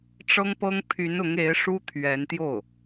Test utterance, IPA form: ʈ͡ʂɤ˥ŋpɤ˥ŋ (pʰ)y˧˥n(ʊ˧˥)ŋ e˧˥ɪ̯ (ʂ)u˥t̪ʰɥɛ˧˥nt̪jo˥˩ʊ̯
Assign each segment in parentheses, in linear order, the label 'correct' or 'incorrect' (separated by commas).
correct, correct, correct